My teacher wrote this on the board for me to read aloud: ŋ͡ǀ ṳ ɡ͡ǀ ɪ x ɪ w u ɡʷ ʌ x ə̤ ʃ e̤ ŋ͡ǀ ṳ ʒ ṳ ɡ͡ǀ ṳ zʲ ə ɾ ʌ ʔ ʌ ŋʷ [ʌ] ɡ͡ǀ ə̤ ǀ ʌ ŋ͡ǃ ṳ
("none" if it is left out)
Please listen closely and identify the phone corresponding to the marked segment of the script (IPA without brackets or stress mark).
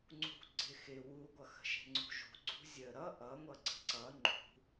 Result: ʌ